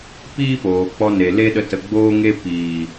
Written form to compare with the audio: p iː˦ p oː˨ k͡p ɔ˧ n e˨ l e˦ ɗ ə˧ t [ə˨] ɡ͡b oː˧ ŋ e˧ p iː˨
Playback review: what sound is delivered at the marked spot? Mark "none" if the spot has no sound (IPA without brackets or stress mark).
ə˨